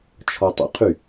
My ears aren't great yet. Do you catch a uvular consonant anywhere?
yes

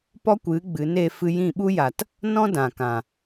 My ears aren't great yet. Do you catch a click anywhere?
no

